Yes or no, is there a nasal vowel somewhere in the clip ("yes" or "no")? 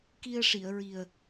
no